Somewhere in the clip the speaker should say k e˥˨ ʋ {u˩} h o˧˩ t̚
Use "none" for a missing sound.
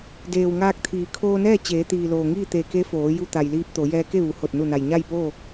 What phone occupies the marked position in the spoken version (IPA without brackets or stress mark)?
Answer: u˩